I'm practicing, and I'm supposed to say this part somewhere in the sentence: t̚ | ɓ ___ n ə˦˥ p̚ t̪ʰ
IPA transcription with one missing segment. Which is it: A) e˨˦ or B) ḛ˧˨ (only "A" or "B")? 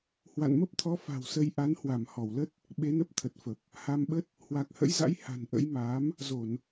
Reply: A